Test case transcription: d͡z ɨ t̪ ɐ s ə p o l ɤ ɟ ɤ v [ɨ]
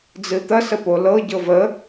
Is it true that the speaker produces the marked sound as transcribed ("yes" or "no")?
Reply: no